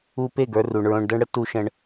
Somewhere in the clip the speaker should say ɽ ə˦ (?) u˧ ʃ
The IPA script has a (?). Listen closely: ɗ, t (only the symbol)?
t